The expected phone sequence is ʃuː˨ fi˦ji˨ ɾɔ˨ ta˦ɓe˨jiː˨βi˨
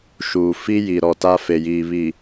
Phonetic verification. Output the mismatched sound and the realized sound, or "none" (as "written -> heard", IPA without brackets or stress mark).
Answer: ɓ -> f